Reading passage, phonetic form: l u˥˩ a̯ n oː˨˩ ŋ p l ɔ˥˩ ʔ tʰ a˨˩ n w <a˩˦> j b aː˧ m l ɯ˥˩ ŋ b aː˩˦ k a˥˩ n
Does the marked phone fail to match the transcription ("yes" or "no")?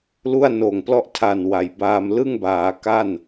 no